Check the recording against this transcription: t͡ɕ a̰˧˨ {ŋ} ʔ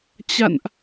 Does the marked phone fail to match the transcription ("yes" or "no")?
yes